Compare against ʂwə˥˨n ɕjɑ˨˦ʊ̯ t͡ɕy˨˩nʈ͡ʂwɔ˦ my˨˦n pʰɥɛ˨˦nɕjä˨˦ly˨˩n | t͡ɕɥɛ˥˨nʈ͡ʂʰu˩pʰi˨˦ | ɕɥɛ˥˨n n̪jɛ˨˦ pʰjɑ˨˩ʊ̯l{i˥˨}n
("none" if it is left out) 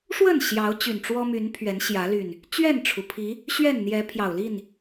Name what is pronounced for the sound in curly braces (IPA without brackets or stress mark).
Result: i˥˨